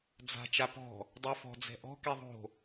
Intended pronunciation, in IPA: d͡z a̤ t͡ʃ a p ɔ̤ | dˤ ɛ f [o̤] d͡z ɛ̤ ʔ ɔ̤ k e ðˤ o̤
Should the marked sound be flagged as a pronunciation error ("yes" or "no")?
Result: yes